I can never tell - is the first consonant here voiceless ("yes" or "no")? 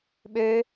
no